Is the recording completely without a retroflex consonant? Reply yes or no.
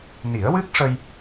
no